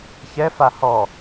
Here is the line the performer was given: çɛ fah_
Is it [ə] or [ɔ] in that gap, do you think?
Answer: ɔ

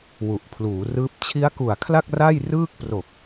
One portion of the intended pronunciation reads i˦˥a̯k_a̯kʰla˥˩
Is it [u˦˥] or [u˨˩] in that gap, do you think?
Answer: u˨˩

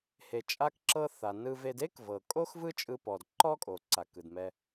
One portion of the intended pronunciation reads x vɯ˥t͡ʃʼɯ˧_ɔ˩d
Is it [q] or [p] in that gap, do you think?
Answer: p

